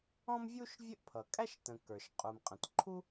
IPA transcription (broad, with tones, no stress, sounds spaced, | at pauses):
ɔ̃˥ m vʲ u˥ ʃ vʲ ə˥ ʔ pʰ ʌ˩ kʼ æ˥ ʃ t ə̃˩ k ə˞˩ ʃ qʼ u˩ m qʼ ə̃˩ t ǃʰ u˥